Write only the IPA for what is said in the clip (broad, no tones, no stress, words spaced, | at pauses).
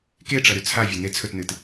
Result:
keʈ͡ʂɐ ɾʉt͡sʰavʲɐ net͡sʰɵtnɨt